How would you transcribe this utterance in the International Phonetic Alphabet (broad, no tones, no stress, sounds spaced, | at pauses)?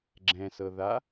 ɡ͡ǁ ɛ̃ s ɤ ð a